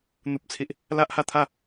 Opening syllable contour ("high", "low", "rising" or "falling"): high